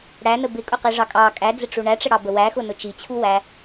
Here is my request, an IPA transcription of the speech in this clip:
ɽ æ n ə b ɪ kʼ ʊ q i ʐ ɑ kʼ ɑ kʼ æ d͡z ɪ ʈ͡ʂ u ɳ æ ʈ͡ʂ ə ɽ ɑ b ə w æ x ʊ n ʊ t͡ʃ i t͡ɕʰ u w æ

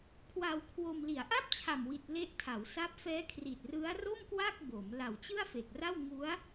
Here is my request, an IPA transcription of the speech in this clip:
kʰ w a˧ w kʰ w o˧ m l i˩˦ a̯ ʔ a˥˩ p̚ t͡ɕʰ a˨˩ m w i˨˩ t̚ l e˦˥ ʔ tʰ a˩˦ w s a˦˥ p̚ f ɛː˦˥ kʰ r i˨˩ t̚ r ɯ˦˥ a̯ r o˥˩ m k w a˥˩ k̚ b o˩˦ m l a˨˩ w t͡ɕ ɯ˥˩ a̯ f e˨˩ k̚ r a˥˩ w ŋ u˦˥ a̯

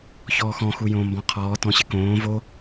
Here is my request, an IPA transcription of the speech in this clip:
ç ɔː x ɔ̃ x u j õː m b ɔ̃ qʰ ɔː t ɔ̃ ɕ ɪ k õː v o

